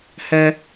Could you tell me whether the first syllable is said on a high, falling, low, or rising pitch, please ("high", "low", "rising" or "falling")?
high